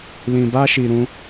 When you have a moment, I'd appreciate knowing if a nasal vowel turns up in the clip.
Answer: yes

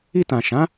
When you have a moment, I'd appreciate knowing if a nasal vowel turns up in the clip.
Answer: yes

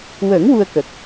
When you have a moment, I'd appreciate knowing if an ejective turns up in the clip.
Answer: no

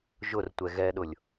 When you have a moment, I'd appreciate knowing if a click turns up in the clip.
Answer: no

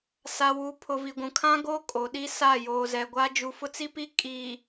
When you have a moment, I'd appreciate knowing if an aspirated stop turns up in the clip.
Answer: yes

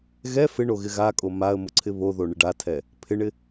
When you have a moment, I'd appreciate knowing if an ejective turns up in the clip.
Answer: yes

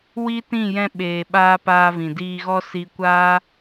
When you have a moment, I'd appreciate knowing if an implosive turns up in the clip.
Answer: yes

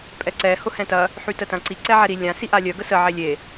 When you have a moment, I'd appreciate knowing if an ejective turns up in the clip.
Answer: yes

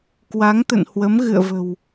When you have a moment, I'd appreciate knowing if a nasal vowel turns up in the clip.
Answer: no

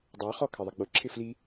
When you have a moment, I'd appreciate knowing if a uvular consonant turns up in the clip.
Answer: yes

